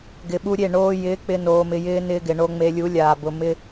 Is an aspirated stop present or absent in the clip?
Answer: absent